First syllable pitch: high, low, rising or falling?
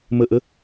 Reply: falling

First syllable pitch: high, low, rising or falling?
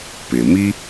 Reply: low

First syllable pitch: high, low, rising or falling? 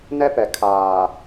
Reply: high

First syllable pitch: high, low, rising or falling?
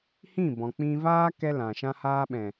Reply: falling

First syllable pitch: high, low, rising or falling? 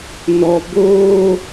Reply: high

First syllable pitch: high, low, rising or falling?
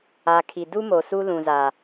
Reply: low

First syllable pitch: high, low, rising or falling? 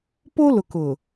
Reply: high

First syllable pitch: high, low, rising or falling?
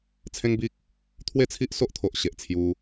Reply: high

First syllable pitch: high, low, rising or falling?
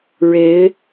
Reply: rising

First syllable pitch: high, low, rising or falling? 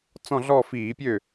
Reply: falling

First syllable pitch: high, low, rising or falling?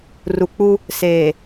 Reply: low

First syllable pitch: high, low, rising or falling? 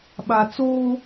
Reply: low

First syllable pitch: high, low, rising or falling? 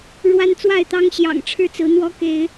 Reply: high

